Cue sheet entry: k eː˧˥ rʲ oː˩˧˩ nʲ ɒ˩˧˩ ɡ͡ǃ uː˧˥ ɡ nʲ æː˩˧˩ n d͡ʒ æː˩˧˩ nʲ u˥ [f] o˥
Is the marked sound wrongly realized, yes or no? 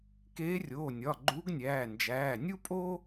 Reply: yes